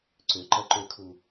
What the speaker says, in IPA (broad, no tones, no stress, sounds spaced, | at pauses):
ǀ ʏ ǃ ɐ ǃ ʏ kʰ u